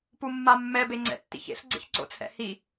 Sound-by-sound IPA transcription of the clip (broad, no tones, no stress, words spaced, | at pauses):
pumːamːɛ beŋ͡ǀɛ̰tːḭçḛɬ ɡ͡ǀḛçǀo̰t͡sʰɛ̰hi